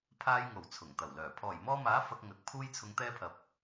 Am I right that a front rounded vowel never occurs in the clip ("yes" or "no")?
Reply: no